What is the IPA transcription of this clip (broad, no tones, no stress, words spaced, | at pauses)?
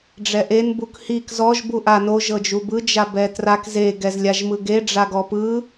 ɖ͡ʐɛʔen bukhik zɔʒ buʔa noʒ ɤd͡ʒubɯ d͡ʒabɛtrak ze ɡɛzlʲaʒmɯɡe ɖ͡ʐaɡɔpɯ